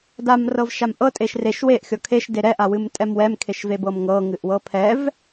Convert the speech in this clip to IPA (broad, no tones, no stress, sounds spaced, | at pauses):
d a m r ɤ v ʃ a m ʔ ɤ tʼ e ʃ r e ʃ w e ʔ xʲ ɔ kʰ e ʃ d e ɾ ɛ ʔ a w ɨ m tʼ ɛ m w ɛ m kʰ e ʃ v e b ɤ m ŋ ɤ ŋ ɨ ʔ w ɤ pʰ ɛ v